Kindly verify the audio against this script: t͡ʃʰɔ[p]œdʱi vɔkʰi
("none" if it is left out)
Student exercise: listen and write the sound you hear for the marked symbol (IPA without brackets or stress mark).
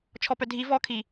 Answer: p